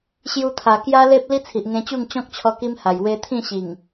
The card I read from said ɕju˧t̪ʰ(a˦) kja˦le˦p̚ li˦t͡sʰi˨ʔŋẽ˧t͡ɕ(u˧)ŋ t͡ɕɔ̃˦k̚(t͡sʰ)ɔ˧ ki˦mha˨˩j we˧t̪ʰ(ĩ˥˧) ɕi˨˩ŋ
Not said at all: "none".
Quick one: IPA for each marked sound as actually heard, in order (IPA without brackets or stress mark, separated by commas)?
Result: a˨˩, u˥˧, t͡ɕʰ, ĩ˥˧